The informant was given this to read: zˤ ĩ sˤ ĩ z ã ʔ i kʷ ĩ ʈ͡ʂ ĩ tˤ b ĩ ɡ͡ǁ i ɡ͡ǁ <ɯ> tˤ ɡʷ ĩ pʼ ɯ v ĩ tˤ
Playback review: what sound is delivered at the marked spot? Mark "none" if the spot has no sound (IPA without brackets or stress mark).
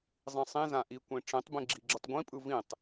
ɯ